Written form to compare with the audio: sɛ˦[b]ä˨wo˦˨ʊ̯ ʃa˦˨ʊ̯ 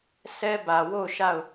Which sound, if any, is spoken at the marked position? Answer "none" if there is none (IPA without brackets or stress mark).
b